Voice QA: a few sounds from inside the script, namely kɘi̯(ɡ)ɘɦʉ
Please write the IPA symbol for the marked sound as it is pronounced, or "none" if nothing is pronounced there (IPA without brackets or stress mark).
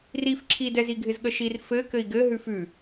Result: ɡ